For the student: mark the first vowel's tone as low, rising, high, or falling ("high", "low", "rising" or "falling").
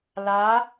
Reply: rising